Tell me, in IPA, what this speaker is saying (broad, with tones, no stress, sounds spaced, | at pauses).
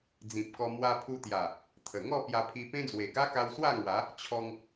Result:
d͡z ĩ˨ p̚ k ɔ˧ m w a˧ pʰ u˧ t̪ j a˨˩ | t̪ʰ ə˨˩ ŋ ɔ˥˧ p j a˧ pʰ i˧ p ẽ˦ d͡z w e˨˩ ɡ a˦ k a˧ w s w a˥˧ ŋ w a˨˦ | t͡ɕʰ ɔ˧ ŋ